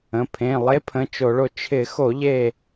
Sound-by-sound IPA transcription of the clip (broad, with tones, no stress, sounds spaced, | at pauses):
ə̃˩˧˩ pʰ ẽ˩˧˩ lˠ e˧˥ pʰ ə̃˩˧˩ t͡ʃ o˧˩˧ ɭ o˧˩ t͡ʃʰ ɪ˧˩˧ x o˧˩˧ ʎ e˧˩